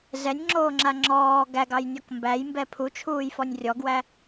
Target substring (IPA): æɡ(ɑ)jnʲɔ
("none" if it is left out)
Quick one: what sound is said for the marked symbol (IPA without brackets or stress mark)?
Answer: ɑ